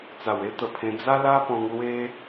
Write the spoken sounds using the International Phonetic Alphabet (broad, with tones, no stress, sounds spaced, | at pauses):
t͡s a˨˩ w e˦ t̪ ə˨˩ pʰ ẽ˧ d͡z a˦ l a˦ p ɔ̃˧ ŋ l w e˦